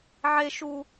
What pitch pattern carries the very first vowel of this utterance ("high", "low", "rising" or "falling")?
low